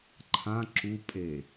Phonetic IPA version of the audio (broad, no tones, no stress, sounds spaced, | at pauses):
ǃʰ ã ǁ u pʼ e